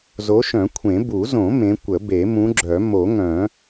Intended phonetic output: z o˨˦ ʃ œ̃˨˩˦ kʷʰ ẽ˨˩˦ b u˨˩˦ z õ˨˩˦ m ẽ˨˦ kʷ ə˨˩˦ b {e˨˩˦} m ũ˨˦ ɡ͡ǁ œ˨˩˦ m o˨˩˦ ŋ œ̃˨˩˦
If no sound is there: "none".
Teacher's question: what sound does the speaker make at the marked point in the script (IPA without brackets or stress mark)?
e˨˩˦